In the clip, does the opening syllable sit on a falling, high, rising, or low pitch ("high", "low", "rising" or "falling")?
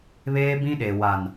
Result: high